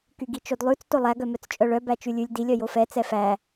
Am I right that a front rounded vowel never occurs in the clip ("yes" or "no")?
no